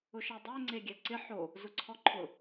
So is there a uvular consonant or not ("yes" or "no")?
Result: no